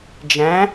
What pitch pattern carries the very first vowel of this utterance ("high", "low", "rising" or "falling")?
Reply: rising